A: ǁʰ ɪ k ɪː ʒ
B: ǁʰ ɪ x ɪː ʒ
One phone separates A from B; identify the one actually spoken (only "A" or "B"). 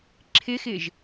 B